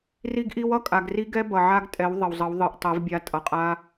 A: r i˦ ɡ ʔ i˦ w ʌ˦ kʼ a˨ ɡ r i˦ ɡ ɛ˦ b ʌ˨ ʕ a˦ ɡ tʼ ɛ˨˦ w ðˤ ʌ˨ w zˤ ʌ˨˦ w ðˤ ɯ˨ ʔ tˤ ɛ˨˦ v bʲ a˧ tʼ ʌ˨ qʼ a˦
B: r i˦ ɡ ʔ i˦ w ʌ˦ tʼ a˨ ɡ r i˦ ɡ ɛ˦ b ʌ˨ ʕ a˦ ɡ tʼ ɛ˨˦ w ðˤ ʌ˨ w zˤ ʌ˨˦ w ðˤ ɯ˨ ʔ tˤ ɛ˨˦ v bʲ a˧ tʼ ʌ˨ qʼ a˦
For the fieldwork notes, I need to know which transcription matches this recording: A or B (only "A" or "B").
A